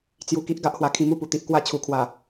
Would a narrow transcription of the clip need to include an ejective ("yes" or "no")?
no